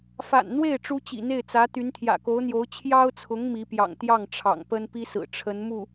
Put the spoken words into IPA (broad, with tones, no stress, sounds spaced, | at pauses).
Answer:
f a̰˨˩ n n̪ w e˥˩ ɪ̯ ʈ͡ʂ u˥ t͡ɕ ḭ˨˩ n̪ e˥˩ ɪ̯ t͡s ä˧˥ t̪ y˧˥ n t̪ʰ j ä̰˨˩ k o˧˥ ʊ̯ n̪ j o˧˥ ʊ̯ t͡ɕʰ j ɑ˥ ʊ̯ t͡sʰ ʊ˧˥ ŋ m i˧˥ p j ɑ̰˨˩ ŋ t̪ j ɑ˥˩ ŋ ʈ͡ʂʰ ɑ̰˨˩ ŋ p ə˥ n p i˥ s ɹ̩˨˩ ʈ͡ʂʰ ə˧˥ n m u˥˩